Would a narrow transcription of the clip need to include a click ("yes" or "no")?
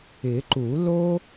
yes